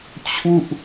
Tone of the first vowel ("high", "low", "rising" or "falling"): falling